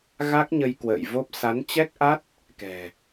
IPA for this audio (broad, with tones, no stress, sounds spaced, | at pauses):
ɣ a˦˥ k̚ ɲ ə˧ j k w ə̰ː˧˨ j v o˦˥ p̚ s a˨˦ n t͡ɕ ɛ˦˥ k̚ ʔ a˦˥ t̚ | k ɛ̤˨˩